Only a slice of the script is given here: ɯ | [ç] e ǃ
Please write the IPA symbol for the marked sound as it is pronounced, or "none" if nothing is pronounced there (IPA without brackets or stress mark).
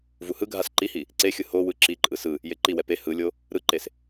j